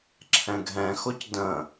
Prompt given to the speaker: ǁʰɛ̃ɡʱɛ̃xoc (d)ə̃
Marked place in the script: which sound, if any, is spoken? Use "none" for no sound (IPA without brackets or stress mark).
d